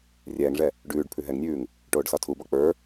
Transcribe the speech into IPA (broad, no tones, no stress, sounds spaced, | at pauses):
rʲ ɛː ŋ ʐ ɛ | ɖ ʉː ɖ pʰ ʉ ɦ ɛ ŋ nʲ ʉː ŋ | ʈ oː ɖ s ɒ tʰ u b ɒ k͡p ə˞